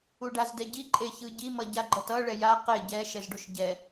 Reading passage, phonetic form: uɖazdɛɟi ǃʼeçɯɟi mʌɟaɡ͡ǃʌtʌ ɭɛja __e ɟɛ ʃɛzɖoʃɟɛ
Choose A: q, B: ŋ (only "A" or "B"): A